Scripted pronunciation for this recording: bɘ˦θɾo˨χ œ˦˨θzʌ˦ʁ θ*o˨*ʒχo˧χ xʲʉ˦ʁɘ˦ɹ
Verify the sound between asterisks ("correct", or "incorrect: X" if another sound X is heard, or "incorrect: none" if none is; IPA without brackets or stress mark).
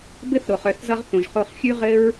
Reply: incorrect: õ˨